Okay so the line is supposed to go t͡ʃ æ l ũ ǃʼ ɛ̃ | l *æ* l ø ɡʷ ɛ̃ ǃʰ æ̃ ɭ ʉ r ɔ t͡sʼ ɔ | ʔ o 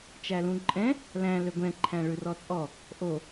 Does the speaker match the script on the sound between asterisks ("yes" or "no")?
no